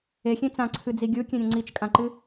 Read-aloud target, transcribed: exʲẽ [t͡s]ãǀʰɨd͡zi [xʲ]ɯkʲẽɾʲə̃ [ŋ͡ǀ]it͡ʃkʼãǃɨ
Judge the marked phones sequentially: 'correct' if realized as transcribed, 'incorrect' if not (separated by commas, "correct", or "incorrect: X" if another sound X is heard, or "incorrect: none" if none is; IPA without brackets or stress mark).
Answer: correct, incorrect: ɡʲ, correct